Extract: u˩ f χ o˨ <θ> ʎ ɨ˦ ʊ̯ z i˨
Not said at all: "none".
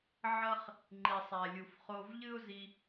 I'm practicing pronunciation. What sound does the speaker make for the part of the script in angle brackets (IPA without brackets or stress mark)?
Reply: v